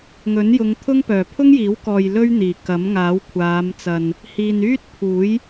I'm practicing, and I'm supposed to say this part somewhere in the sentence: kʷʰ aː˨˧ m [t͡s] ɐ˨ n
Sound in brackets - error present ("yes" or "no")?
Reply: no